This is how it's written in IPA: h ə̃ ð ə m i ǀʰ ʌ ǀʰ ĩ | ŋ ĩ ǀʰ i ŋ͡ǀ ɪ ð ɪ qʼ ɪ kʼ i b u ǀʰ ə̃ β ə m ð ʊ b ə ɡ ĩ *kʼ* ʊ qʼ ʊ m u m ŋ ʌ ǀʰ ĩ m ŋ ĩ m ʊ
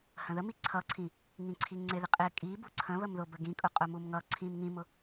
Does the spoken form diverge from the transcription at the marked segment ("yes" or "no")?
no